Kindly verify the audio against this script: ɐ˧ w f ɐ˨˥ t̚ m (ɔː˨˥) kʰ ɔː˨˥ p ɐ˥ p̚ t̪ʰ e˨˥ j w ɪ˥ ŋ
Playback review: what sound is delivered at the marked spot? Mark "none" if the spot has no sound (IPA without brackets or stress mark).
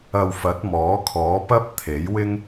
ɔː˨˥